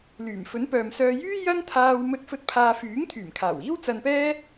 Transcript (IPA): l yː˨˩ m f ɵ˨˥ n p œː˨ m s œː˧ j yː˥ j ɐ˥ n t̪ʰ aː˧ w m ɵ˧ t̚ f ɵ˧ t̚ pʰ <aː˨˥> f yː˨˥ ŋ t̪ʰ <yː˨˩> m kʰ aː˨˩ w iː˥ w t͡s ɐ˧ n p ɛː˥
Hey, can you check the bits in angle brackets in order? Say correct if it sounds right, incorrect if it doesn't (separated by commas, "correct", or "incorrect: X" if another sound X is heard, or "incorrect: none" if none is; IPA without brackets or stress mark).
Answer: incorrect: aː˧, correct